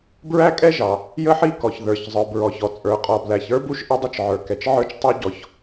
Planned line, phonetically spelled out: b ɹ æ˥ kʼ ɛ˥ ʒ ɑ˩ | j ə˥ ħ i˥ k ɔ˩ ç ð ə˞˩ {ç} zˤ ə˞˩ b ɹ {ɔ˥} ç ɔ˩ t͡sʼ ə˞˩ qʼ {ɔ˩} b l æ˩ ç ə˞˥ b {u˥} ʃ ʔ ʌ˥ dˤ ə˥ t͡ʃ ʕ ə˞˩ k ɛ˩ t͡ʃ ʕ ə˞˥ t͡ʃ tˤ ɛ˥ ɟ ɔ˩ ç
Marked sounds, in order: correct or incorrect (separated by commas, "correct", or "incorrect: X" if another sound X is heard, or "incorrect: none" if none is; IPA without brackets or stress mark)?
correct, incorrect: ɔ˩, correct, correct